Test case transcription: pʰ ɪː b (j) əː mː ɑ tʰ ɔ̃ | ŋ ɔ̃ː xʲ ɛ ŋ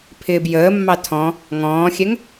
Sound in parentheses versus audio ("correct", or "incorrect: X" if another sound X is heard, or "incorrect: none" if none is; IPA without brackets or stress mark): correct